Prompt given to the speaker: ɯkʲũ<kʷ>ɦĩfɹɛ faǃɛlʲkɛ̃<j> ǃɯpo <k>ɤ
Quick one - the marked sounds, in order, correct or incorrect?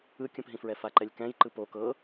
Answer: incorrect: p, correct, correct

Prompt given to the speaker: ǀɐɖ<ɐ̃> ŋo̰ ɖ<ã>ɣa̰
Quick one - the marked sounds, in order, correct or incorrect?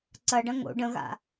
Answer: correct, incorrect: ə̃

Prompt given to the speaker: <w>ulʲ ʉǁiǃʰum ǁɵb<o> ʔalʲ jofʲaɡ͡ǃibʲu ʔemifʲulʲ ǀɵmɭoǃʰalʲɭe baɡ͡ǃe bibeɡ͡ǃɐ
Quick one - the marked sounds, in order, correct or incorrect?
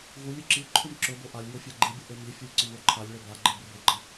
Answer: incorrect: ɣ, correct

